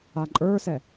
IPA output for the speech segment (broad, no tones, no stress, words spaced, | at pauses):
aǃʼə˞sɛ